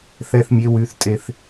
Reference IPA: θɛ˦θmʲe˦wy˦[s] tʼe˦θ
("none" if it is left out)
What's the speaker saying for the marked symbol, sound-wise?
θ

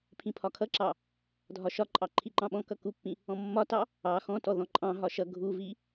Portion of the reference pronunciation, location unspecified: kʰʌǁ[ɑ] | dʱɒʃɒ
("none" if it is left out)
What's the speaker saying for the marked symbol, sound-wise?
ɑ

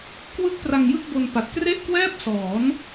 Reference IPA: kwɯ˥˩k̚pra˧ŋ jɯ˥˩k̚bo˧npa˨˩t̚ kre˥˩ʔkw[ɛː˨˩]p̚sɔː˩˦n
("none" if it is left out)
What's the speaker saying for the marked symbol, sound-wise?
ɛː˥˩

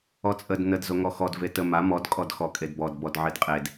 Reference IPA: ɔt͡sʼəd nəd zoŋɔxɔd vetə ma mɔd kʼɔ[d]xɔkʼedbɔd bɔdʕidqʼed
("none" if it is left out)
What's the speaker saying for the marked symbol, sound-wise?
d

